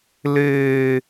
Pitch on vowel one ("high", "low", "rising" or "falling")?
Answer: high